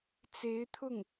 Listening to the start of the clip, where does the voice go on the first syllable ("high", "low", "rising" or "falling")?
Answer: rising